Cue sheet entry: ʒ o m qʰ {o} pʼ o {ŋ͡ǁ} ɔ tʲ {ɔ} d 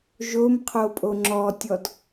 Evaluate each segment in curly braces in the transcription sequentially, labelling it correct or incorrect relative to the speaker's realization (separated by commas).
correct, correct, correct